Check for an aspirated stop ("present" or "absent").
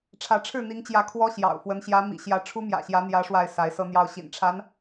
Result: present